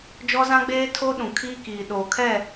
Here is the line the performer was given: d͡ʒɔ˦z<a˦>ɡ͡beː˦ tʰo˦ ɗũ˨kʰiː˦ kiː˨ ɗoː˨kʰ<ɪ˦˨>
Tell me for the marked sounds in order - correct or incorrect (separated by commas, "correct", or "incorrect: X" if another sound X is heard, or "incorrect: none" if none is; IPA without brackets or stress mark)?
incorrect: ã˦, incorrect: ɛ˦˨